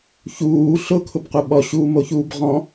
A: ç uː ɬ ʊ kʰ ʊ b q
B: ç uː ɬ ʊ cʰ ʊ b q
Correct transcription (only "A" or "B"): A